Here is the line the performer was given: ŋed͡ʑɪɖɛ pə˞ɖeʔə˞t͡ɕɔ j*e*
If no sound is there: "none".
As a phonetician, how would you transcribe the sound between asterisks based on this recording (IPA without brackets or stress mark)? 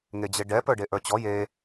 e